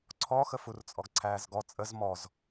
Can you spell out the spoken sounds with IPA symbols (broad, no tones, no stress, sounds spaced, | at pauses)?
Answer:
ǀʰ ɔ x ə f u r t͡sʼ ɔ ɡ ǀʰ æː z ɡ ɔ t͡sʼ ə z m ɔ z